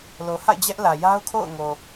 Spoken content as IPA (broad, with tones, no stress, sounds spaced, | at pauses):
l o˨ h a̰˦˨ ɪ̯ d͡ʑ ɛ˦ ʔ l ä˨ j a˦ ʊ̯ kʰ o̰˦˨ ʊ̯ ŋ o˨